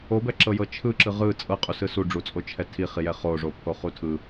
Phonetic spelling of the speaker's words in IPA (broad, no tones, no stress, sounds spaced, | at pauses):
o b ɛ ǁ ɤ j ɤ t͡ʃʰ ɯ ǁ ɯ ʁ ɯ t͡sʼ ɤ qʼ u s ɯ s u ɖ͡ʐ u t͡sʼ o t͡ʃʰ ɛ tʰ i χ i j ɛ χ o ʐ o pʰ o χ u tʰ ɯ